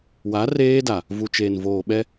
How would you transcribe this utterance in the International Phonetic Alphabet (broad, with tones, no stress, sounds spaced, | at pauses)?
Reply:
w a˨˦ r eː˦ d a˨ | v u˨ t͡ʃ eː˨ n v oː˨ ɓ ɛ˦